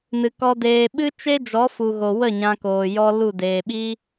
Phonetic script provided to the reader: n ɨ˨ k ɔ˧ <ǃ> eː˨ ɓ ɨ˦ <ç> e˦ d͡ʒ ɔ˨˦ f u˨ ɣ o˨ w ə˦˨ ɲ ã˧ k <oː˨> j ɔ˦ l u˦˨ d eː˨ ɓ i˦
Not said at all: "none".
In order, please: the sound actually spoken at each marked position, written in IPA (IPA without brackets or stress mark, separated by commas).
d, t͡ʃ, oː˨